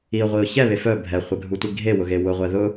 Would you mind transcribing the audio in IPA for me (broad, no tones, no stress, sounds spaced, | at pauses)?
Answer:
i ʊ̯ ʁʷ i ʊ̯ ç ɛ β e f œ bʱ ɛ χʷ ɛ ɡʱ u tʷ i ɡʱ e w ʊ ɣ e w ʊ ʁʷ ɛ ð ʊ